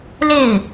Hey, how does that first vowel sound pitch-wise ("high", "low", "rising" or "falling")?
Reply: falling